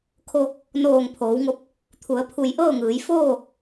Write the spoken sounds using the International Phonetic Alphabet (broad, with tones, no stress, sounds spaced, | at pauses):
kʰ o˧ | n oː˧˩ ŋ pʰ oː˩˧ w ŋ o˧ p̚ | t̪ʰ u˩˧ ə̯ pʰ u˧˩ j ʔ ɤː˥˨ ŋ ɯː˩˧ j f oː˥˨